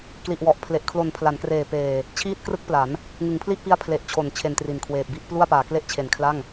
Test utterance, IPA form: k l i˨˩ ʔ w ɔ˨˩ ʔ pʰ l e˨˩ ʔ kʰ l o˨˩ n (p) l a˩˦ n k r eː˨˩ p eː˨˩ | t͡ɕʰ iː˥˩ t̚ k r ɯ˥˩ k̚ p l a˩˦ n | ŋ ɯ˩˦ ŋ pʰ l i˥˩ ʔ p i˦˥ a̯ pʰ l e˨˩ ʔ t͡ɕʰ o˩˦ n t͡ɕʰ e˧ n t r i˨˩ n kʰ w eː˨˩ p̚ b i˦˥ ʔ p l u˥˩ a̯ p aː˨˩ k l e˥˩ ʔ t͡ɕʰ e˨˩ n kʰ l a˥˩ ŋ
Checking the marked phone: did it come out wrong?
yes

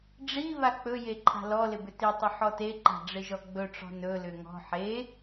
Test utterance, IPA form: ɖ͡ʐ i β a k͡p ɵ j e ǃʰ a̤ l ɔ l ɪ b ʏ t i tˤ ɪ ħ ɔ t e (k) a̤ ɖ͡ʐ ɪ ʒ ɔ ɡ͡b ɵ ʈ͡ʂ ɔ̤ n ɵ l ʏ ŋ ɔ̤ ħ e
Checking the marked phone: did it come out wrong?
yes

